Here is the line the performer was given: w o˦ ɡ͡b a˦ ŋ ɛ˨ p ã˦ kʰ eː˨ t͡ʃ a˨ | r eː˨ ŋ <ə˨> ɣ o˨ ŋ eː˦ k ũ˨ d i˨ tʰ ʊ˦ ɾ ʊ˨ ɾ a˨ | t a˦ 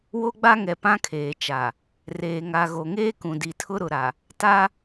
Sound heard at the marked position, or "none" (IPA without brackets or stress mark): a˨